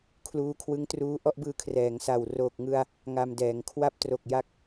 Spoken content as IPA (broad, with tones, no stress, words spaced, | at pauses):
kʰluː˧kʰwɯ˦˥ŋ truː˦˥ʔɔ˥˩ʔbɯː˧ kʰrɛː˩˦ŋsa˨˩w roː˨˩k̚ŋɯ˧a̯ | ŋa˧mdɛː˩˦ŋkʰwa˥˩p̚ tro˨˩k̚ ja˦˥k̚